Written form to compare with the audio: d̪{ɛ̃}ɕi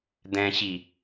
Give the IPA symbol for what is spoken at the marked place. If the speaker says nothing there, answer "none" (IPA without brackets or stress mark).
ɛ̃